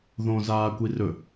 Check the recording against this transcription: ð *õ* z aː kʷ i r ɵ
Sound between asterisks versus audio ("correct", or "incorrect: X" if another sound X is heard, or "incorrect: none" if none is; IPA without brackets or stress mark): correct